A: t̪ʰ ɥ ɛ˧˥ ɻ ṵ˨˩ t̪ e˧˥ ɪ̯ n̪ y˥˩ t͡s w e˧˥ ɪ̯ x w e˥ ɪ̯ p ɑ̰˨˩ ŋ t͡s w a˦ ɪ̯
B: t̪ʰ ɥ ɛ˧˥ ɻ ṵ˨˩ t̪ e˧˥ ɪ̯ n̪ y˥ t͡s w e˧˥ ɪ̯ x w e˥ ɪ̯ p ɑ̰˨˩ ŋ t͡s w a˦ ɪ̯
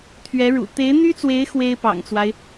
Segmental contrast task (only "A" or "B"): B